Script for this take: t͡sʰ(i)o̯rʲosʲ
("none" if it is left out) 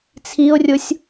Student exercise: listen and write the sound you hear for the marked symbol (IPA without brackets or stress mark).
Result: i